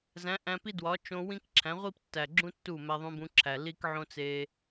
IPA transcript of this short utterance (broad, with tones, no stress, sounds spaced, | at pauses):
z æ̃˨˦ ʔ æ̃˧ p i˦ d w ɒ˨˦ t͡ʃ õ˧ w ĩ˦ k ǁʰ æ̃˨˦ ʁʷ i˦ p tː æ˨ ɡ͡ǁ ũ˦ tː u˦˨ m æ˧ ðˤ ũ˧ b ũ˧ ǁʰ æ˨ l i˦ k ʕ õ˦ t͡s e˧